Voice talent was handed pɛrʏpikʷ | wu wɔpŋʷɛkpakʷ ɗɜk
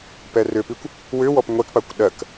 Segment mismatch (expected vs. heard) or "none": u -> ʏ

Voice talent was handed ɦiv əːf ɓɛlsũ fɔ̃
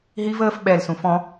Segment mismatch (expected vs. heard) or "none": none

